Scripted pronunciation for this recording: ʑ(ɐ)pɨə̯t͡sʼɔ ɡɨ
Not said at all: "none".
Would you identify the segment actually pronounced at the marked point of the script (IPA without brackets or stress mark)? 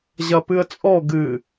ɐ